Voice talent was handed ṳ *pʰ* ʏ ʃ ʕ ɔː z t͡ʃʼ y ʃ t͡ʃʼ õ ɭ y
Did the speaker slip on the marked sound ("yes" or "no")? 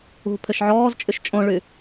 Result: no